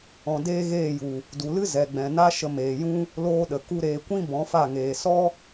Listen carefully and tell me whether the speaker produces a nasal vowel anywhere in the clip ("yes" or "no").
yes